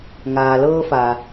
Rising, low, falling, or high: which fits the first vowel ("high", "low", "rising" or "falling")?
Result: low